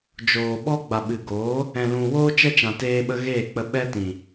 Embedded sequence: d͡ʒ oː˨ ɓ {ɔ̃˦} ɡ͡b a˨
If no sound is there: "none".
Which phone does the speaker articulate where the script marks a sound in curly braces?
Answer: ɔ˦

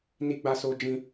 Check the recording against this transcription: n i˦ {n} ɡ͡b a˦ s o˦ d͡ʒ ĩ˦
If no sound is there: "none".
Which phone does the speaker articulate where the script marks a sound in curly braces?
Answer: none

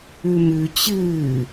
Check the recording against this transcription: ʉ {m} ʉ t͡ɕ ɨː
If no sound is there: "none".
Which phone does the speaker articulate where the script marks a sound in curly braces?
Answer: m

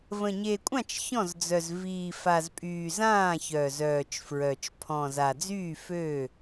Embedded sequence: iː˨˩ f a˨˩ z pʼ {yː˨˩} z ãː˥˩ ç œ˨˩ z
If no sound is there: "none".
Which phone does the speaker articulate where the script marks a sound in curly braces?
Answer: yː˨˩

